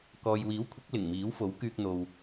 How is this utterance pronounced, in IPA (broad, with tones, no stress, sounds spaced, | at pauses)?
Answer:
k ɔː˨ j w iː˨˥ w kʷʰ ɐ˨˥ k̚ l ɪ˨˩ ŋ m iː˨˥ w f o˨˥ w k yː˧ k̚ n̪ o˨ w